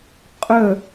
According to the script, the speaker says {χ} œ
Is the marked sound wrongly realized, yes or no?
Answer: yes